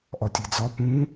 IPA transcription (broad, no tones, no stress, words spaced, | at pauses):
ʔɒtʲed͡zɒ pũ